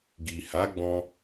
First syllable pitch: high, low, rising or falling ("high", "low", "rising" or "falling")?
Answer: low